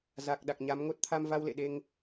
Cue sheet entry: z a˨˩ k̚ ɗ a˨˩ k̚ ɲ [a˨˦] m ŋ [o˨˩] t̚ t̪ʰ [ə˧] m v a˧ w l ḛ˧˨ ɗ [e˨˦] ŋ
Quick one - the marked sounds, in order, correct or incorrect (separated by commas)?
correct, incorrect, incorrect, incorrect